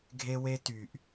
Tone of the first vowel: high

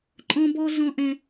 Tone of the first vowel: high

